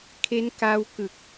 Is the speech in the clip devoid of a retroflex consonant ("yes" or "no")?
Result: yes